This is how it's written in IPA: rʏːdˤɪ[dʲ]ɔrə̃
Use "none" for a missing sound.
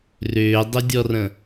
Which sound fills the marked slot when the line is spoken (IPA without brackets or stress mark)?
dʲ